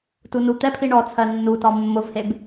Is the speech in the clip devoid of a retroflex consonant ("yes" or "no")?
no